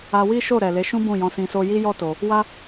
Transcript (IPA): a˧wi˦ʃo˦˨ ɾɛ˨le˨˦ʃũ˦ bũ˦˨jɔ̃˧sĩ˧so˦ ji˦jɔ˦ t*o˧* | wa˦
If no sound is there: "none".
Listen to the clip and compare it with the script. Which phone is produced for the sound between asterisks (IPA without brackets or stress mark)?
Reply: o˧